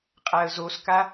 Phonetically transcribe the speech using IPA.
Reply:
qʼaə̯zoska

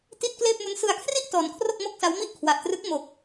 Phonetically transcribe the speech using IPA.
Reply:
ti˥˩t̚ kleː˥˩p̚mu˦˥n sɯ˧a̯kʰri˥˩ʔ tɔː˧n kʰro˥˩k̚mo˥˩k̚sa˦˥wmi˥˩ʔ kʰwa˨˩ʔtrɯ˦˥k̚ mo˨˩k̚

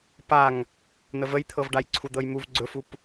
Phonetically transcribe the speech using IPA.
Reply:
paŋ | n̪əvəjt̪ʰɤvɖaj ǀʰud̪ɤjmuv ɡ͡ǀɵfup

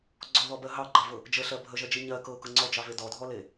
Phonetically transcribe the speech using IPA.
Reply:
ɡ͡ǀɔðɔbɜ ɦɑɡ͡ǃɑvɤ | d͡ʒəɬɜ bʱəʒɜd͡ʒi ɲɜ kɤkɤ ŋ͡ǀɔd͡ʒɑve dɔdʱɔle

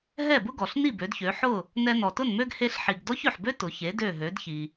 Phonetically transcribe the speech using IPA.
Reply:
ɦɛ˥˩bʊ˥ɡɔ˩ɬni˥˩ bø˩˥dçø˩˥ ħʊ˥˩ | nɛ˧nɔ˩tʊ˥˩nmø˥ɡ he˧ɬħi˩ɡ dɔ˥çø˩ħbø˥ tʊ˩çe˩˥ dø˥˩ɦø˩˥dçi˩

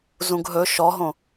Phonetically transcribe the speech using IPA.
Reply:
zũɡɦɵ ʃɔɦõ

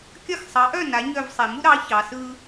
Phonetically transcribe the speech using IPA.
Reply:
kʲɐ˥˩x sˤɑ˩˥ʔœ˥˩ na˩˥ ɲœ˧˩vsˤe˩mu˦ɾɑ˩˥ çɑ˩˧sɯ˦

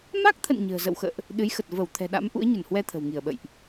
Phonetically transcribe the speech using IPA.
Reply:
ma˦˥k̚t̪ʰə̰˧˨n ɲə̤ː˨˩zə̰˧˨wxə̰ː˧˨ʔ | ɗɨ˨˦jxə˨˩t̚ və˧˩w t̪ʰɛ̤˨˩ɗa̰˧˥m ʔṵ˧˥ə̯ɲə˧˩nhwɛ˧ t̪ʰə̤˨˩wŋi˧˩ə̯ɓə̰˧˨jʔ

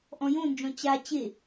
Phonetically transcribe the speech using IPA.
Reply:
ʔɔ̃jõnd͡ʒɔ̃ t͡ɕa t͡ɕe

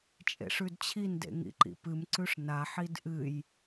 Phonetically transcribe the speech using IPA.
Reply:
t͡ʃʼḛʂʉdt͡ɕʰindḛ ŋḭǃḭpɨmǀʉʂ naħid ʔɨj

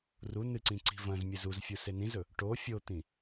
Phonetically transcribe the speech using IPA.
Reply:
ru nɨǀĩ ǀi̤vɐ̃zmʲɨz uzfʲu senĩzɵ | ʈo fʲot̪ĩ

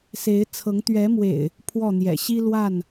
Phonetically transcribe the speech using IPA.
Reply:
se˨˦ɪ̯t͡sʰɤ˨˦ŋ t̪ɥɛ˨˦mwḛ˨˩ɪ̯ | pʰwɔ˥˨n̪jɛ̰˨˩ ɕi˦lwa˥˨n

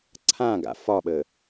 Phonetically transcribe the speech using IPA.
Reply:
ǀʰãɡa̰ fɒɓə

